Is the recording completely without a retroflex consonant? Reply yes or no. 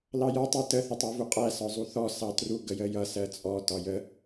yes